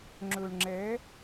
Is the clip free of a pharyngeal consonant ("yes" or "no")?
yes